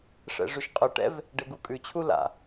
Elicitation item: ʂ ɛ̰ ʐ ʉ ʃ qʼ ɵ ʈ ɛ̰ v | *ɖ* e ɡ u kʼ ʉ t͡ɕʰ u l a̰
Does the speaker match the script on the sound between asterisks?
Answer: yes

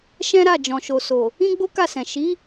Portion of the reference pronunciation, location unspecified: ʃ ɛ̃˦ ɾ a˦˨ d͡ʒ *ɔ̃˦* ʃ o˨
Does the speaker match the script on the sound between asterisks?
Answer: no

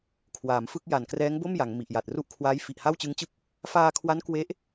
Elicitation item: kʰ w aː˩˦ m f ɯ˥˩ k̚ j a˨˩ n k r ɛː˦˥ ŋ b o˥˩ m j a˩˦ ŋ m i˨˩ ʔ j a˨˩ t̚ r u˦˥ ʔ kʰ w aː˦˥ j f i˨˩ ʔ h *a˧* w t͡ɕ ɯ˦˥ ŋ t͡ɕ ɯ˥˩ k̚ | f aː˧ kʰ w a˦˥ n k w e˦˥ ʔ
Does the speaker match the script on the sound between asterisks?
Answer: no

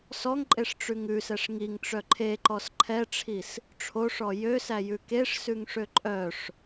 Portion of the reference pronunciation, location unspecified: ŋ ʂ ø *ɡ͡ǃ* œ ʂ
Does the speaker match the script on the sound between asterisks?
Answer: no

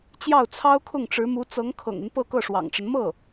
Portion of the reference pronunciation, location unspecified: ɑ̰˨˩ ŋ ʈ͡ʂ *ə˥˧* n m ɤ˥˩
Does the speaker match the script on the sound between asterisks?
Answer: no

